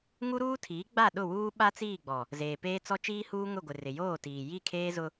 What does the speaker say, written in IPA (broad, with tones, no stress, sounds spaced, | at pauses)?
ŋ u˦ ɾ uː˦ tʰ iː˨˦ ɡ͡b a˦˨ ɗ ʊ˦˨ w uː˦ ɓ a˦ t͡s iː˦˨ ɡ͡b ɔ˨ | z eː˨ p eː˦ t͡s ɔ˦ t͡ʃ iː˦ h uː˦ ŋ ʊ˦˨ ɡʷ ɪ˨ r ɪ˨ j oː˦˨ t iː˨ j i˦˨ kʰ eː˦ z ʊ˦